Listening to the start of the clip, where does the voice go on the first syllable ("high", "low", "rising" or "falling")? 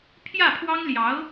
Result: falling